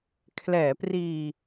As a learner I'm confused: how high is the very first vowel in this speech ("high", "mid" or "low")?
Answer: mid